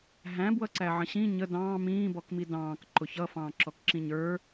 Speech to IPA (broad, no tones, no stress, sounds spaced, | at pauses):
ɦ æ̃ b w ʌ ǀ æ ʕ ə̃ ɕ ĩ ɲ ə d ɑ̃ː m ĩː b ɔ k m i d ɑ̃ː k ǃ ʊ ç ʌ f ɑ̃ː ǁ ɔ k ǁ ĩ ɲ ə˞